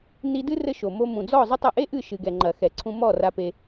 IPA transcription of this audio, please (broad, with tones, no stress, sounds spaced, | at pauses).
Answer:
n i˧ d ɨ˦ r ɘ˦ ʃ o˨ m o˧ m ũ˨ d͡z ɔ˦˨ zˤ ɘ˦ tˤ ɐ˧ ʔ e˦ ʔ ɨ˦˨ ʃ ɨ˨ ɡ ɛ˨ ŋ͡ǃ ɐ˨ x ɛ˨ ǀʰ ũ˧ m ɔ˦˨ r a˧ p e˧